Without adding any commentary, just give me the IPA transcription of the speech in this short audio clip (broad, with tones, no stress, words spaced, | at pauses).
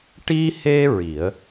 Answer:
ʈi˧he˧ ɹi˨˩˦ə̯